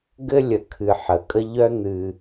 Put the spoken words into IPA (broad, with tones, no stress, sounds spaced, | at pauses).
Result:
ɡ ɘ˥ lʲ ə˨ kʰ ɨ˨ ħ ə˨ kʼ ə˥ ʎ œ˥ n̪ ɨ˨